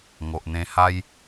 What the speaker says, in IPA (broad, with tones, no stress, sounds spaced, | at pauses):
ŋ o˨ ʔ n̪ ẽ˧ h a˦ j